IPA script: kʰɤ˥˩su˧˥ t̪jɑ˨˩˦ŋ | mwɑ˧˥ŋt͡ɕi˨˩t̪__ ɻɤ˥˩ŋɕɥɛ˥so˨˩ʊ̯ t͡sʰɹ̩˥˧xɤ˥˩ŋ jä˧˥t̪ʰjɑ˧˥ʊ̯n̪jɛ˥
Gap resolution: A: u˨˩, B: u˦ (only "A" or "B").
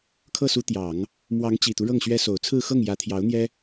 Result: B